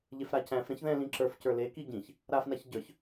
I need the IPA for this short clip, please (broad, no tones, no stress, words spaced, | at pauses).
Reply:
ʎefɾacæ̃fɾɛ̃ç ðɛ̃lĩ ǁə˞fcə˞ leki ɟĩç | ɾafnaç ɟə˞ç